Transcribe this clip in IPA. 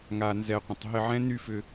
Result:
ŋ a˧ n z ɛ˧ qʷ ə̃˨ tˤ ɦ ɪ˧ ʕ ɛ̃˦ n y˧ f ʏ˧

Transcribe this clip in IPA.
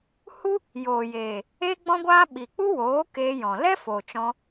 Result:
h u˦ | j oː˨ j eː˨ | e˦ ɡ͡b ɔ̃˦ ɡʷ aː˦ ɓ i˨ k͡p u˦ w oː˨˦ k eː˧ j ɔ̃˨ l ɛ˦ f oː˨ t͡ʃ ɔ̃˧

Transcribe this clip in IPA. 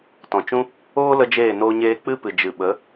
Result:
t ɔ̃˨ t͡ʃ ũ˦ | oː˦ l ə˦ d͡ʒ eː˦˨ n oː˧ ɲ eː˧ k͡p ɨ˦ p ɨ˨ d͡ʒ ɨ˨ ɓ ə˨˦

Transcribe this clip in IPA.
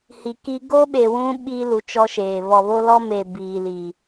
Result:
h i˨ k i˦ ɡ oː˦ ɓ e˨ w ũ˦ ɓ i˦ l u˨˦ t͡ʃ ɔ˦ ʃ eː˨ β ɔ˨ β o˦ l ɔ˦ m eː˨ b iː˦ l i˦

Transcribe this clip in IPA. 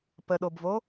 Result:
p ə ɗ o b v o

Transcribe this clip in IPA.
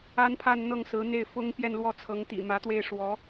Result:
a˥ n pʰ a˥˧ n n̪ ɤ˥˩ ŋ s ɹ̩˧˥ n̪ e˥˩ ɪ̯ f ʊ˥ ŋ p j ɛ˥˧ n l w ɔ˥˩ t͡sʰ ɤ˧˥ ŋ t̪ ḭ˨˩ m ä˧˥ t̪ w e˥˩ ɪ̯ ʂ w ɔ˧˥

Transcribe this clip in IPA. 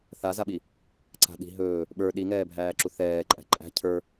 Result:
θ a z a ɓ i | ǀ a̤ ɗ i̤ ɦ ɵː | ɓ ə˞ ɗ i ŋ ɛː bʱ æː ǁ u θ ɛː ǃʼ æ̤ ǃʼ æ̤ cʰ ə˞

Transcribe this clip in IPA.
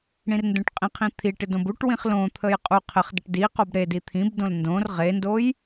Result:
ɽ ĩ r n d õ ʈ qʼ ĩ qʰ ĩ t̪ʰ i ʈ ɪ d õ b u ʈ w ĩ χ l õ t̪ʰ ə j qʼ u qʰ ɪ χ d ə ʈ d i q o b ɾ e d i t̪ʰ ĩ b d õ l n d õ r ʁ e n d o j

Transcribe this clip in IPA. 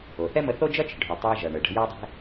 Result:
o˩ θ ɛ˥ m ə˧ θ o˥ d͡ʒ ʌ˥ t͡ʃ ə̤˩ ɖʱ u˩ tˤ ɛ˧ ʒ ʌ˩ ɳ ə˩ ɖ ə̤˧ j a˥ dˤ ɛ̤˥

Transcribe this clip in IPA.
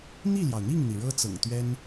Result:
n̪ i˥˩ l j ɑ˩ ʊ̯ n̪ i˥˩ ŋ n̪ i˩ ɻ ɤ˥ t͡s ɤ̰˨˩ ŋ t̪ ɥ ɛ˥ n

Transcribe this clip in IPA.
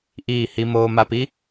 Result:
ʔ iː˦˨ h i˧ m oː˧ m a˧ p i˦

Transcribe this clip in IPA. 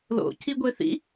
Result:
l o̰ c i ɡʷ e θ ḭ

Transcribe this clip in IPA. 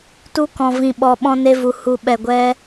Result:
t u˧ k ɔ̃˨ v ĩ˨ ɓ ɔ˨ ɓ ɔ̃˧ n e˧ v u˨ h u˨ ɓ ɛ˨ ɡʷ ɛ˧

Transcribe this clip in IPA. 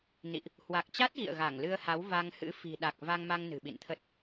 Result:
n ḭ˧˨ ʔ | h w a˨˩ k̚ t͡ɕ a˦˥ t̚ ɣ ḭ˧˨ ə̯ ɣ a˧˩ ŋ l ɨ˧ ə̯ h a˨˦ w v a˧ ŋ h ɨ̰˧˥ f i̤˨˩ ɗ a˨˩ k̚ v a˧ ŋ m a˧ ŋ n ɨ̤˨˩ ɓ ḭ˧˨ n t̪ʰ ə˦˥ t̚

